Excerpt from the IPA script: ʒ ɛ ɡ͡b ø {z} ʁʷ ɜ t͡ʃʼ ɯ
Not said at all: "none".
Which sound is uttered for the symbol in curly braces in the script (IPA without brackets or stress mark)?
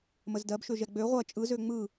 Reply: none